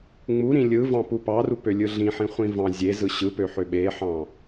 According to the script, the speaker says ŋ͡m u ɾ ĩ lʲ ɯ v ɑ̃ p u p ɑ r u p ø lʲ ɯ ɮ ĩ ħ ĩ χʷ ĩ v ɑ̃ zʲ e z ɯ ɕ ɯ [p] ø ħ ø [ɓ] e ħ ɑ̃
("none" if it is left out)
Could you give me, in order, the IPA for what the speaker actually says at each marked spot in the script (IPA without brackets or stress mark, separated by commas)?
p, ɓ